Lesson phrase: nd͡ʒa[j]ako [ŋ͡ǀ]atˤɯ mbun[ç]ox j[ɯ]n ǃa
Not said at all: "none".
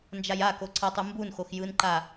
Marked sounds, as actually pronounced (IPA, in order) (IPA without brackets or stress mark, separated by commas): j, ǀʰ, x, ɯ